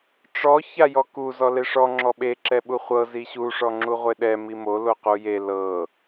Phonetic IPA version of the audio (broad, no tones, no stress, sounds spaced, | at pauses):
ʈ͡ʂ ɔ ç a j ɔ k u z ɔ l e ʂ ɔ ŋ͡ǁ ɔ ɓ e ǁ ɛ ɓ u χʷ ɤ z i ɕ u ʂ ɔ ŋ͡ǁ u ʁʷ e ɗ ɛ m i m o l o q u j e l ɤ